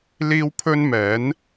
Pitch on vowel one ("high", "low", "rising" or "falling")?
high